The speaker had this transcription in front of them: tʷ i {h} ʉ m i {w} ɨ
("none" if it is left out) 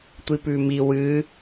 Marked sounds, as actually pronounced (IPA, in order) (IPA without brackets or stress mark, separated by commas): p, w